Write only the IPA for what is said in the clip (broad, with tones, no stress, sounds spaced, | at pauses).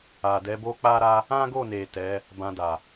a˨ d ɛ˨˦ b o˦ k͡p a˦ ɾ a˦ | ã˦ ɡ o˦˨ n e˨ t ɛ˨˦ | b ã˧ d a˨